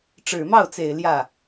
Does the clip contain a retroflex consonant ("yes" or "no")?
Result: yes